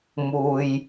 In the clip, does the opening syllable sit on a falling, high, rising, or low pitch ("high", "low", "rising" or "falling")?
low